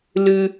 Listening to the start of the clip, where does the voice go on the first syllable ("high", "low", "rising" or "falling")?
high